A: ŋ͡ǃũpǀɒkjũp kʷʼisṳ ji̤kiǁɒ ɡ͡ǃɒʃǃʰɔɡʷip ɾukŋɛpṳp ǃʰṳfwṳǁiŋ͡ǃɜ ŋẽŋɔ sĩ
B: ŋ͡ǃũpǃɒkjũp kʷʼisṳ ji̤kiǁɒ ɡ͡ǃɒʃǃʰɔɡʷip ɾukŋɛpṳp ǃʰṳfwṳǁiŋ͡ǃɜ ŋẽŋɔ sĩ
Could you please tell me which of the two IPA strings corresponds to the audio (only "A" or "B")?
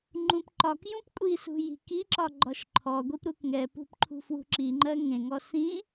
B